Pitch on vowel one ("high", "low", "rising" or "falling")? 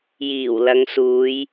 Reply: low